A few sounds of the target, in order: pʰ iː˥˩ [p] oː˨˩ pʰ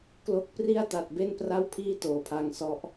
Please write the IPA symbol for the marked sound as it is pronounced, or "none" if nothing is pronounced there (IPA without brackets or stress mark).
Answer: t